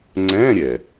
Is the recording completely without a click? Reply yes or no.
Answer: no